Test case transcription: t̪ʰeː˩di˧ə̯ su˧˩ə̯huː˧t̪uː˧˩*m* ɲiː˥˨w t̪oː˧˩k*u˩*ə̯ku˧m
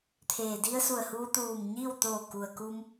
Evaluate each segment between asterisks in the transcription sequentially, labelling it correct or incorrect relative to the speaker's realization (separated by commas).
correct, correct